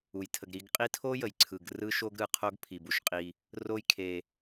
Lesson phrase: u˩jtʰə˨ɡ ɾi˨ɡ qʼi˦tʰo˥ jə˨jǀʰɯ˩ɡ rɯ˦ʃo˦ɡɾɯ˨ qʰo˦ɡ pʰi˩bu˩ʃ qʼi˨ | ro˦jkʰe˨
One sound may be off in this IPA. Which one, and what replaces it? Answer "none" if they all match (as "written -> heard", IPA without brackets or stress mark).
none